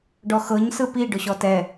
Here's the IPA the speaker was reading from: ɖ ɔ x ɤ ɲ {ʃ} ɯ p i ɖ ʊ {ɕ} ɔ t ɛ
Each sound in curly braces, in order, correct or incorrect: incorrect: s, correct

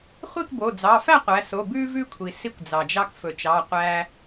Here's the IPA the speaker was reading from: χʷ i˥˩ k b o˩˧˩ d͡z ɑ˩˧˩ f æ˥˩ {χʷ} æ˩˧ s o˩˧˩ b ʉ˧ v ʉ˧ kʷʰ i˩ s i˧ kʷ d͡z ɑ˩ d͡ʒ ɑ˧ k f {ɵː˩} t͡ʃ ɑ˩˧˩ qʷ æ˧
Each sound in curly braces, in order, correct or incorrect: incorrect: qʷ, incorrect: ɵ˩

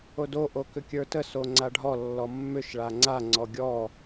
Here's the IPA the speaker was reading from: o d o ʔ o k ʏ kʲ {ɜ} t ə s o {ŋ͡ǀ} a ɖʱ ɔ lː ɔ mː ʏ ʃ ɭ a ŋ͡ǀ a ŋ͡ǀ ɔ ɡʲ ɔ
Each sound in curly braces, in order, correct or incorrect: incorrect: ə˞, correct

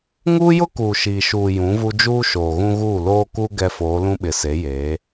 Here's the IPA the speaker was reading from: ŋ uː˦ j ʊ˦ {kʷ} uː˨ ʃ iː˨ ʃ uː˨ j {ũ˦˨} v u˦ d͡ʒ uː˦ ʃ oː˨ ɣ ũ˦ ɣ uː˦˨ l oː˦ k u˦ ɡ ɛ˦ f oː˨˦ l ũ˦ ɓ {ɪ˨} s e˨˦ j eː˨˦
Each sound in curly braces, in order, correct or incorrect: incorrect: k, incorrect: ũ˨˦, correct

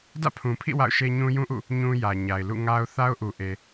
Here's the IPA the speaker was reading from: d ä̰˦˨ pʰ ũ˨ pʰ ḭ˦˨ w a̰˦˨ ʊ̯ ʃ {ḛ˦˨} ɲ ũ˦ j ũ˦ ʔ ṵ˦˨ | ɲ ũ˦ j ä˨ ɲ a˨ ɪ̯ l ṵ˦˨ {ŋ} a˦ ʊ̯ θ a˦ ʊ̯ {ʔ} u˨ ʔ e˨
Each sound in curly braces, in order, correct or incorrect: incorrect: e˦, correct, correct

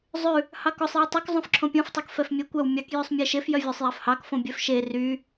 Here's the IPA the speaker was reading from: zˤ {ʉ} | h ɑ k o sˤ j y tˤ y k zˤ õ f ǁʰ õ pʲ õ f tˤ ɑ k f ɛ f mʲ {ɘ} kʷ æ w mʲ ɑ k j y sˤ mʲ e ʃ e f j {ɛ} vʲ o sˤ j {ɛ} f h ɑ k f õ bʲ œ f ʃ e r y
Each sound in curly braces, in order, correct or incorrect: correct, incorrect: e, incorrect: œ, incorrect: æ

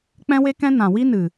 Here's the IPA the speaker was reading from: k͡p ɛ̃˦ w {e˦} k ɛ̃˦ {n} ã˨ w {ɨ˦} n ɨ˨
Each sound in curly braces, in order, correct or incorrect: correct, correct, incorrect: i˦

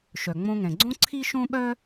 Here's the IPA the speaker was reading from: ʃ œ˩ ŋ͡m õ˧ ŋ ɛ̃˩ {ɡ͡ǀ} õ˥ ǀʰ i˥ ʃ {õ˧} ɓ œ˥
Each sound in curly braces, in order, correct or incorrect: correct, incorrect: õ˥

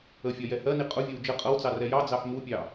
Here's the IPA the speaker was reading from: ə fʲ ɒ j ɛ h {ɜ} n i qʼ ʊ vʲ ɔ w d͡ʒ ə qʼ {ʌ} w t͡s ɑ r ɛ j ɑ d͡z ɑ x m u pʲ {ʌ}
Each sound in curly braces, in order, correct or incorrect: correct, correct, incorrect: ɑ

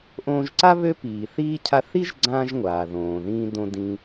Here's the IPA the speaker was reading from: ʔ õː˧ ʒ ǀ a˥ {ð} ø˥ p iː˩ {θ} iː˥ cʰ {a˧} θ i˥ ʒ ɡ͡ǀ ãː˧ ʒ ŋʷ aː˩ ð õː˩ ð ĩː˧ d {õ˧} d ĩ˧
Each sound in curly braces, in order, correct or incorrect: incorrect: β, correct, correct, correct

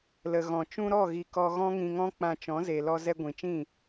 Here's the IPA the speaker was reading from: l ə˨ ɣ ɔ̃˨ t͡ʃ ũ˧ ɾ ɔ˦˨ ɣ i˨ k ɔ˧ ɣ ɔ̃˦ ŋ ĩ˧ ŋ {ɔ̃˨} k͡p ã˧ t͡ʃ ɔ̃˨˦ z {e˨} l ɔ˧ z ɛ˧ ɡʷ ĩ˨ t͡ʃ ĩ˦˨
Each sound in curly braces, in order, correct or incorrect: incorrect: ɔ̃˦, correct

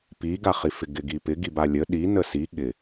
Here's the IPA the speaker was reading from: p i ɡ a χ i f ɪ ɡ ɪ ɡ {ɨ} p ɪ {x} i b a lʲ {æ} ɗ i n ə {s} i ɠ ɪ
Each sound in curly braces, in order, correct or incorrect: incorrect: i, incorrect: ɡ, incorrect: ə, correct

